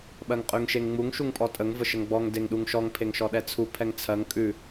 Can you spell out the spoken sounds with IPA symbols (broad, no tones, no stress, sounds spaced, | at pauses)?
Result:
ɓ ɜ ŋ qʼ ʉ ŋ ʃ e ŋ ŋ͡m u ŋ ʃ u ŋ pʼ ɔ tʼ ə ŋ v ə ʃ ə ŋ ɡ͡b ɔ ŋ d e ŋ ɗ u ŋ ʃ ɔ ŋ pʰ e ŋ ʃ ɔ ɗ ɛ t͡sʰ u pʰ ɛ ŋ t͡sʰ ɜ ŋ kʼ ʉ